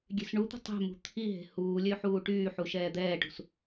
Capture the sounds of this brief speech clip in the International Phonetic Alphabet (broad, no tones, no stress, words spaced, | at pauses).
ɡʲe̤sɳut̪ə̤ tˤe̤mṳ t̪ʰiɦe̤ huːlʲø ħuːʈyːħu ʃɛːd̪ɛːʈṳs